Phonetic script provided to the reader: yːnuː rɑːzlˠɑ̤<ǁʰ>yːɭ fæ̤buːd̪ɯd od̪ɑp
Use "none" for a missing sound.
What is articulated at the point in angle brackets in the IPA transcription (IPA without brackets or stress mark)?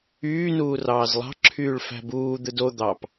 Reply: ǁʰ